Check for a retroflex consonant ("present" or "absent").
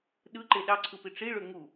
present